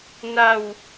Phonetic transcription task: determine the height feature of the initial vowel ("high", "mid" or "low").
low